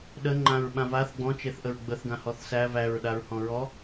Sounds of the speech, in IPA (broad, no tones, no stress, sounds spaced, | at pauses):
ɗ ə ŋ͡ǃ ã ɹ ɓ ã v a θ ɡ͡b ɔ̃ t͡ʃ e θ ʔ ə ɹ ɡ͡b ə θ ɡ ã h ɔ θ s æ v æ ɹ ɗ a ɹ h ɔ̃ ɹ ɔ